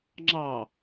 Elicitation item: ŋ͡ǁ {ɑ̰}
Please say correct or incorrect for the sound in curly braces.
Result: incorrect